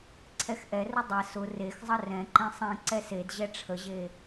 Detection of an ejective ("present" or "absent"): absent